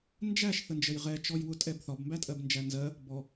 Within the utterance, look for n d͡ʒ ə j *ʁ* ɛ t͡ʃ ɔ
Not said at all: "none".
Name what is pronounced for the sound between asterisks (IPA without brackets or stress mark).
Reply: ʁ